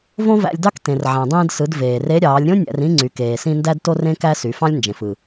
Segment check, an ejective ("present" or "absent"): absent